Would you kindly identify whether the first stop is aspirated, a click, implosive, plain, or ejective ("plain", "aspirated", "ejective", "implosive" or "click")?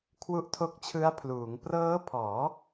aspirated